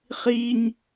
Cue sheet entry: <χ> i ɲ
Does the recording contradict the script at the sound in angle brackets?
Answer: no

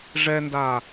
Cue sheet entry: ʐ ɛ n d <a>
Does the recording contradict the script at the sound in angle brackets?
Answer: no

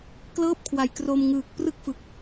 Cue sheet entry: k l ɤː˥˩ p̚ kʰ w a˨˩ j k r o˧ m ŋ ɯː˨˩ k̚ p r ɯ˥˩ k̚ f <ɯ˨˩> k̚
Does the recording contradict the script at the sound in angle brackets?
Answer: no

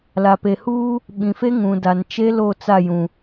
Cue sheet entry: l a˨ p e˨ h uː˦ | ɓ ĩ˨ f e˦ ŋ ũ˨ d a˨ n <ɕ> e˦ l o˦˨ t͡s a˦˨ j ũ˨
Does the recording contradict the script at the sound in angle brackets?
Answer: yes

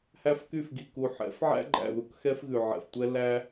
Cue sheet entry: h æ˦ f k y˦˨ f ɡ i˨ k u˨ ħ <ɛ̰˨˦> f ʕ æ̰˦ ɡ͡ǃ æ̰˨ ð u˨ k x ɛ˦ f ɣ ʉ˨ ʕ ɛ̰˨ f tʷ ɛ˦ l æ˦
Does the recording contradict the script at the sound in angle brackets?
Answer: no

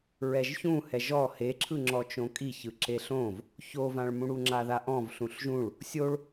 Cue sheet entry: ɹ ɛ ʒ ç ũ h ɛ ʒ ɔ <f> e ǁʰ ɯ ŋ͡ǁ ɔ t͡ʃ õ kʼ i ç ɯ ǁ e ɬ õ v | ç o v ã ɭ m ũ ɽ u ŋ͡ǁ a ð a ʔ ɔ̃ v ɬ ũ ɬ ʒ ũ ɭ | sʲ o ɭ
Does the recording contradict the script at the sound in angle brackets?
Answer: yes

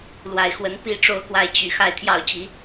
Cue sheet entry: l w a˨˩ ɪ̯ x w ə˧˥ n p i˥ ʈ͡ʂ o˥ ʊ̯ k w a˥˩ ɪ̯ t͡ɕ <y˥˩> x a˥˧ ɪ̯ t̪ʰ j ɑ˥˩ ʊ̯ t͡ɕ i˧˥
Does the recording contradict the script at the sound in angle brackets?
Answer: yes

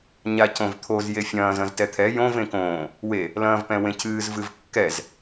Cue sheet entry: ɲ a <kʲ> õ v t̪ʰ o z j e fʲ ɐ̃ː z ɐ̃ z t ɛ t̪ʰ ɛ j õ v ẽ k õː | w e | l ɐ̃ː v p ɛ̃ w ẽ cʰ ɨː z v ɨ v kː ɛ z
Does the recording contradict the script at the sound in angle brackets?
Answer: yes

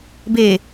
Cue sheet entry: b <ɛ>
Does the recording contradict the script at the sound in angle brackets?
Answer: yes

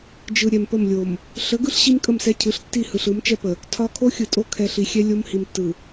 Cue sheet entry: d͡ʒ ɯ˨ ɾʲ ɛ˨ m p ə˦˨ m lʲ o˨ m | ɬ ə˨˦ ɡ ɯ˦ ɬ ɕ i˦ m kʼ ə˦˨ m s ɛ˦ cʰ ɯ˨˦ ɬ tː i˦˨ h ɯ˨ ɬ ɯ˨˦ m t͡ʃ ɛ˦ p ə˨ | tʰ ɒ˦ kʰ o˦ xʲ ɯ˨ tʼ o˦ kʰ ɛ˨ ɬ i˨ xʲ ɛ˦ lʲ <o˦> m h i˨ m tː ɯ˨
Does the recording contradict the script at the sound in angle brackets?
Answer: no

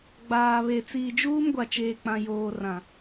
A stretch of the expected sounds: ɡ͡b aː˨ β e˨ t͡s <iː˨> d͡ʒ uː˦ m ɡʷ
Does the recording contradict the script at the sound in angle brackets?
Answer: no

